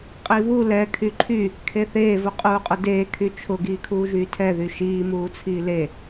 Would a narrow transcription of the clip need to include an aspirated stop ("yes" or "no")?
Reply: yes